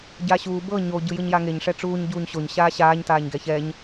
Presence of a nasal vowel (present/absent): absent